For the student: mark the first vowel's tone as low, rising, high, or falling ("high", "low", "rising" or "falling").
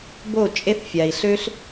falling